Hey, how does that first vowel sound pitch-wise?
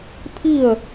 falling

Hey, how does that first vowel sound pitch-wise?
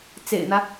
low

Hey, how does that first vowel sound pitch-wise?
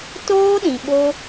high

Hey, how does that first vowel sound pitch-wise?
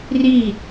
falling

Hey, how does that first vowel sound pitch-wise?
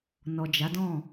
low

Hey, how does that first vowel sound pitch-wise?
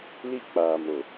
high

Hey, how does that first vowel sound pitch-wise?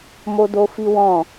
high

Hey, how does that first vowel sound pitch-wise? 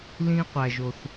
high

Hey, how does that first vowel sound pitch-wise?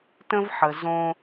high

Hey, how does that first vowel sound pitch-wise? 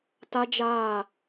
high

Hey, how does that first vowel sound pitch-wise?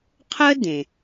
high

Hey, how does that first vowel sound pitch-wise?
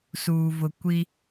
low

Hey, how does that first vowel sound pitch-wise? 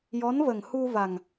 rising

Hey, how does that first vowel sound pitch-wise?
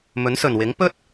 rising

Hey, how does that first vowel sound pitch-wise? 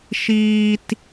high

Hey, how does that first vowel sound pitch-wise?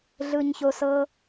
low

